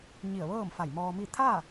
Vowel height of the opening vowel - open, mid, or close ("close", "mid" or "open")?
close